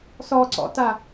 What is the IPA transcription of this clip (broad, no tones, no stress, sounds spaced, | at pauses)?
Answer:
s ɔ ǀ ɔ̰ t a